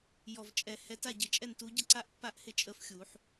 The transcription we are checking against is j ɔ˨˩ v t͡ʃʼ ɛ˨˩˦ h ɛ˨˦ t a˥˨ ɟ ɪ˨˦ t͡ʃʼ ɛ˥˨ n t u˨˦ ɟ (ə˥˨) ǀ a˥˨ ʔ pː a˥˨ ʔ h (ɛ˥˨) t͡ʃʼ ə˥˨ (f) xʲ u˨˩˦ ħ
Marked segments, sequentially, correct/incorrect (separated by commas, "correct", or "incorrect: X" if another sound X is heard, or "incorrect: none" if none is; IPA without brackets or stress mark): correct, incorrect: ɪ˥˨, correct